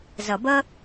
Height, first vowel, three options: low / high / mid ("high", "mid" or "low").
low